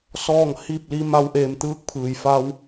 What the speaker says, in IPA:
s ɔː˥˨ ŋ h i˥˨ p̚ l i˧˥ m a˧ w ʔ eː˧˩ m t̪ ɯː˧˥ k̚ pʰ ɯː˩ j f a˧ w

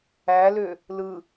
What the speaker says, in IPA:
æ l ø | l ɯ

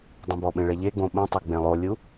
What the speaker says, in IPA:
dˤ ẽ b ɔ ɓ ẽ ɭ e ʎ e ɡ͡b õ ɓ ə̃ tˤ o ɡ͡b ẽ lˠ o lʲ u

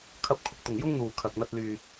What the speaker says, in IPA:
kʰ ɐ˧ p̚ kʰ ʊ˨ k̚ t̪ ʊ˨˩ ŋ j ʊ˥ ŋ n̪ uː˨˩ kʰ ɐ˨ k̚ n̪ ɐ˧ t̚ l yː˨

